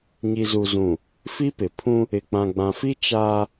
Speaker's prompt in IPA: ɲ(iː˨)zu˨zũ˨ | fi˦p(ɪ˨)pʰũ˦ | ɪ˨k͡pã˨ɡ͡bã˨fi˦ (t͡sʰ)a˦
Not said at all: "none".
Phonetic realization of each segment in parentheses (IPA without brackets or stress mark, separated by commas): i˨, ɪ˨, t͡ʃ